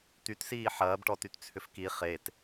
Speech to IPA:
t̪ytsiː ħɐːbʈɔtyt t͡sʰʏfki χet

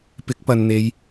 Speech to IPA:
pɪ˨˥k̚pɐ˨nn̪e˨˧j

